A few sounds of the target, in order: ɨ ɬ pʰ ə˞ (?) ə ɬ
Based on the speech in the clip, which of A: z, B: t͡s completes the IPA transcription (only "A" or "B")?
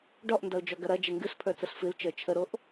B